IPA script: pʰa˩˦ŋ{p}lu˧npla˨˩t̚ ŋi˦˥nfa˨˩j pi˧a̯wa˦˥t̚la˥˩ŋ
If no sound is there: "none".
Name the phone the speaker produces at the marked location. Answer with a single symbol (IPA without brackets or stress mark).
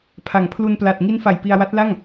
pʰ